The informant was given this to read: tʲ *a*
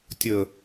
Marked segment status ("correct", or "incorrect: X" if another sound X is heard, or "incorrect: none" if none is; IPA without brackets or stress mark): incorrect: ə